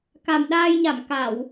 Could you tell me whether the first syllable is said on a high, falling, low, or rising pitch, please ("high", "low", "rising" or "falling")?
low